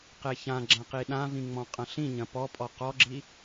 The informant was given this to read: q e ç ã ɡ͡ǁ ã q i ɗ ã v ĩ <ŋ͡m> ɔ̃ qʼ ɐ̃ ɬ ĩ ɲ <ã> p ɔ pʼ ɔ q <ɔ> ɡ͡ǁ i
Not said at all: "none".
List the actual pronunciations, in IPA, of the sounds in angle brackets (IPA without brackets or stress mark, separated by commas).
ŋ͡m, ɐ̃, ɔ